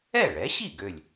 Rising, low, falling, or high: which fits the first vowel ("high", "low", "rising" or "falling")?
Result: falling